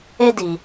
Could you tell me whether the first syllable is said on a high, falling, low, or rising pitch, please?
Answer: high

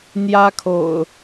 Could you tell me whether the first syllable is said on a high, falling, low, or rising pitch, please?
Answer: high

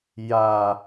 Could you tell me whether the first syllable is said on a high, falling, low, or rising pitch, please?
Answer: low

